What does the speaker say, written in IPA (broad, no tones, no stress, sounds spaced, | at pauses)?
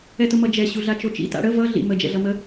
ɛ t ʊ m ʌ d͡ʒ ɛ ɕ u ɮ a t͡ʃ o t͡ʃ ḭ t a̰ ɽ ə v ʌ ɮ ḭ m ə d͡ʒ ɛ̰ ɮ ʌ m ə